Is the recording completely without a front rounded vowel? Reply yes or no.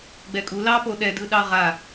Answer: yes